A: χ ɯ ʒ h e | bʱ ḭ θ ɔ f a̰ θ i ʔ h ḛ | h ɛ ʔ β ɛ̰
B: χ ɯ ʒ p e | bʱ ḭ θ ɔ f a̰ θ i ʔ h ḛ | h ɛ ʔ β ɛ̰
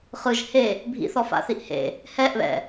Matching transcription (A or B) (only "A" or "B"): A